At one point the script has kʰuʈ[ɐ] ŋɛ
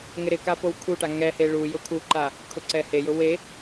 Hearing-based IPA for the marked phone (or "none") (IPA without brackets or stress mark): a